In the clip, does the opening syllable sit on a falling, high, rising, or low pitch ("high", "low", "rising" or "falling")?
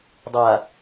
low